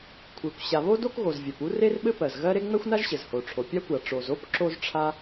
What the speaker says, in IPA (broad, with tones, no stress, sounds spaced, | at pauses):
kʷʰ e˩ kʷ ɕ a˩ β o˥ d o˥ k ɣ o˩ z vʲ ɛ˩ p u˥ r e˥ r ɓ ɘ˥ p ɜ˩ z ɣ ɜ˥ ɾ e˥ ŋ͡m ɛ˥ xʷ n a˥ ʒ ɕ ɘ˩ z h o˩ ʈ͡ʂʰ o˩ pʲ a˥ kʷ a˩ ʈ͡ʂ o˩ z o˥ p ǁ o˥ z ʈ͡ʂʰ a˥